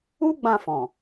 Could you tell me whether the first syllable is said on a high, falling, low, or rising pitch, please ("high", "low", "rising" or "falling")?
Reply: high